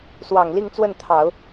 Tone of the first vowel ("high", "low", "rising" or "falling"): low